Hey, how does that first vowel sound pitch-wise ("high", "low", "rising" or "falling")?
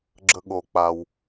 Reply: high